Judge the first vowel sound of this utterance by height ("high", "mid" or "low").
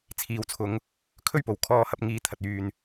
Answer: high